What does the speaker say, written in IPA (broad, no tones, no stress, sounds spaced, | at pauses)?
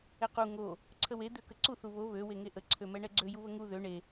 ɛ q u ŋ o | ǀʰ ə w e d̪ ø k ə ǀ u θ u β o β ø w e ŋ e ʔ ə ǀʰ ø m ɛ ɳ ɛ ɡ͡ǀ ø j u β ə ŋ u ð ø ɳ e